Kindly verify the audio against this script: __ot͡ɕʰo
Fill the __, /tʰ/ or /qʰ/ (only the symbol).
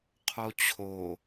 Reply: qʰ